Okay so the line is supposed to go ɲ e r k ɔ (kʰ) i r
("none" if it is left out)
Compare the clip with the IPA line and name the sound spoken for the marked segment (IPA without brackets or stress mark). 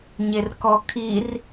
kʰ